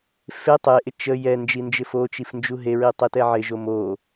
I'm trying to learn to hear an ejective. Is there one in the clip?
no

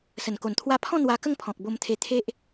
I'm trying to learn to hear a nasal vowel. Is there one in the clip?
yes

